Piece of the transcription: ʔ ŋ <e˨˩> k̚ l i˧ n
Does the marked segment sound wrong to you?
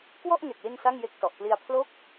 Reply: no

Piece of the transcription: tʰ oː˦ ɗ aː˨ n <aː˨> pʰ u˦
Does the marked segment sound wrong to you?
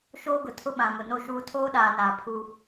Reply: no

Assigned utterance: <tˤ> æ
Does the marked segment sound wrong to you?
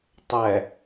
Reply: no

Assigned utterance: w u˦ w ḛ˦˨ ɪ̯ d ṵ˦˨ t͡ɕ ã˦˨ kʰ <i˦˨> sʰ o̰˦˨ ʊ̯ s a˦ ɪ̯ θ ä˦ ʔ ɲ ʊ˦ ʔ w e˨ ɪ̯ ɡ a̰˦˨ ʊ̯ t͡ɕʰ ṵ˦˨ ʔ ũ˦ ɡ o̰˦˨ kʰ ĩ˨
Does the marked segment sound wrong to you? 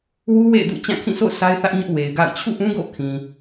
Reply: yes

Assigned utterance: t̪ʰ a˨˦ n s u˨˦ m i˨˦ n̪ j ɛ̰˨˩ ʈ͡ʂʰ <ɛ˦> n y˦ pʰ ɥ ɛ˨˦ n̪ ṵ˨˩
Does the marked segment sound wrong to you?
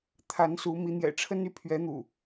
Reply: yes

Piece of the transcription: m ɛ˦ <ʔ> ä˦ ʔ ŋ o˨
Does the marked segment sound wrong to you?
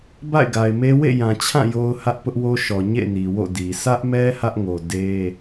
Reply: yes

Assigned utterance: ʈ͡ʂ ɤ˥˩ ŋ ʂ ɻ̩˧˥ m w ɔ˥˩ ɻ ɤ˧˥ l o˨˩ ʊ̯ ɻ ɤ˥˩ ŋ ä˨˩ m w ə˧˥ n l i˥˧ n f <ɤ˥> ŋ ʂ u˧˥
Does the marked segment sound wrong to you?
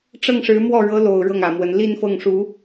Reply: yes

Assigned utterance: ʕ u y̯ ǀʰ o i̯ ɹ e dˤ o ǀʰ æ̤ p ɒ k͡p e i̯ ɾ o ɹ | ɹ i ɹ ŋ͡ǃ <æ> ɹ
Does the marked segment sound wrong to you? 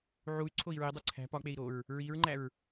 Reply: no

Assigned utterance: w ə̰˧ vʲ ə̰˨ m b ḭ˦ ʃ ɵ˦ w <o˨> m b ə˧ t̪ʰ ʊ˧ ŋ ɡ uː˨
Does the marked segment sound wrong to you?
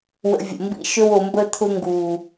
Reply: no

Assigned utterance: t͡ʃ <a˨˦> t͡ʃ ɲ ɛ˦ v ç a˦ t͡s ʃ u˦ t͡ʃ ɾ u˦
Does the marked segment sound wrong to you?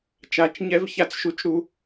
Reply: no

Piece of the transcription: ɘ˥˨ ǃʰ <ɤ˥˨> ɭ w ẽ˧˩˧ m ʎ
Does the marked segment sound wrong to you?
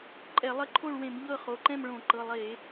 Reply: yes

